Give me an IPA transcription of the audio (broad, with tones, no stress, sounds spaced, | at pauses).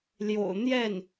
l j o̰˨˩ ʊ̯ n̪ j ɛ˥˩ n